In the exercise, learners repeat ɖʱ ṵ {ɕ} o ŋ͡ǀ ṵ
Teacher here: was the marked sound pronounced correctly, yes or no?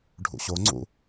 yes